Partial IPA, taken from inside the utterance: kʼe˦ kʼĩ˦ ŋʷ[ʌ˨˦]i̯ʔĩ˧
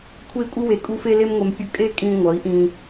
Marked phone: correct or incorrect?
correct